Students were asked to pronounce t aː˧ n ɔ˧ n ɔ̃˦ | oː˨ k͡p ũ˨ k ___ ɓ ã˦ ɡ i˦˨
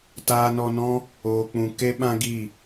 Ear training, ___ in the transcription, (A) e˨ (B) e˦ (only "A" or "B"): B